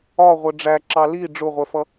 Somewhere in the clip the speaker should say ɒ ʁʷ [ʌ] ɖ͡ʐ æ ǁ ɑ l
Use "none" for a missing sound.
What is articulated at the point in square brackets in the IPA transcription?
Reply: ə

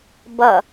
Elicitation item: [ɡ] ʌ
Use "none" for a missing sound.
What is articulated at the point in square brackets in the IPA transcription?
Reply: b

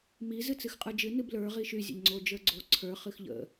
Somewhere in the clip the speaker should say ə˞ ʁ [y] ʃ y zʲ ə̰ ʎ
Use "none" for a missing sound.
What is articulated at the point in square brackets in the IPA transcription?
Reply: i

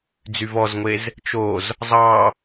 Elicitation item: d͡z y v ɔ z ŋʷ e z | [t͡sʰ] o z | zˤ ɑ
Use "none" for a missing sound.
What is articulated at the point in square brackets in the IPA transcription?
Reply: t͡ʃ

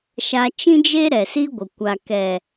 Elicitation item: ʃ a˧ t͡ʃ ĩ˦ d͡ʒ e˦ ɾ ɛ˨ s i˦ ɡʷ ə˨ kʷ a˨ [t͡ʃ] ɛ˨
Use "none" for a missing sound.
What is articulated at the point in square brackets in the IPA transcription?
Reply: k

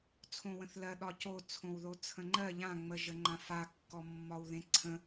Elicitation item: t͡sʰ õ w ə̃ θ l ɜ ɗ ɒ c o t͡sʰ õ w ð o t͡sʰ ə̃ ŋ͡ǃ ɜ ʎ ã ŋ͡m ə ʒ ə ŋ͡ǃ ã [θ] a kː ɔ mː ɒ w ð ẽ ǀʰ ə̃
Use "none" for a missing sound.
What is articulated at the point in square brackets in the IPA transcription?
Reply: f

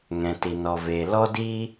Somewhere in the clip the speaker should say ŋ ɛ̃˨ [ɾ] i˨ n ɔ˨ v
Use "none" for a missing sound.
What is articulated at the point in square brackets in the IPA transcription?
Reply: t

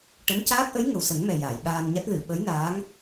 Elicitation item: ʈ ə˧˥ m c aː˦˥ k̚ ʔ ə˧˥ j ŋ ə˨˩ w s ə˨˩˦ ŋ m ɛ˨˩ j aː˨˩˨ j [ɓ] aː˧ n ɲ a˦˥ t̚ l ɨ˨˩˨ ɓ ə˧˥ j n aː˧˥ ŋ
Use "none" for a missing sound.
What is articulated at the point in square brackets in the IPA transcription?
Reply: ɓ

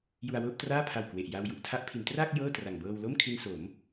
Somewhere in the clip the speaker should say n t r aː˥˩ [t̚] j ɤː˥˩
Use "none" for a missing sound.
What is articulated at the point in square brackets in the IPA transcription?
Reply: k̚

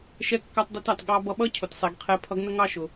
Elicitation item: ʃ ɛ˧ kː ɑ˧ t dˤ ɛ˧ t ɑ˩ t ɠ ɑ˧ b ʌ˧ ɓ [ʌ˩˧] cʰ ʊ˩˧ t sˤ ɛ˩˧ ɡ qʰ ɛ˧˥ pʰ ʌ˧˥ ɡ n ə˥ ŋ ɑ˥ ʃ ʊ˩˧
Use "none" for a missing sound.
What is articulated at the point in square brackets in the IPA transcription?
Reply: ʌ˥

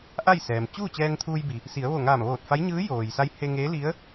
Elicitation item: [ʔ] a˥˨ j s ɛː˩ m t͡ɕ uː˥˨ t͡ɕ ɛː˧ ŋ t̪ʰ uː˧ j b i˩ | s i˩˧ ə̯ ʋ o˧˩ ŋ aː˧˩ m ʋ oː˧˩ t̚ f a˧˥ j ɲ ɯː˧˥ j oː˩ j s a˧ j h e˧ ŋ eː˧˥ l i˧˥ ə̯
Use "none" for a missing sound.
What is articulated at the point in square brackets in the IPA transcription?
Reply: ʔ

